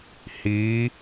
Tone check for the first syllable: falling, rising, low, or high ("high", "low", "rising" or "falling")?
rising